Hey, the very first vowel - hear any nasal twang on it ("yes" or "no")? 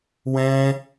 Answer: yes